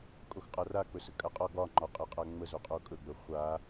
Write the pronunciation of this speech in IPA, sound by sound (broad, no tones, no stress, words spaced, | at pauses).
kʼoxqʼara k͡pɵsəkʼaqʼɒ ɡɒ ŋ͡ǃɒqʼəqʼa ŋ͡mə zoqʼokʼɵɡ͡bɵ χʷa